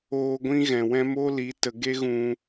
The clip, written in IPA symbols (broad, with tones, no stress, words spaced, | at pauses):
oː˧ ɡʷĩ˦ɣɛ̃˨wɛ̃˦ mo˦li˨˦ tə˨ɡe˦ɣũ˧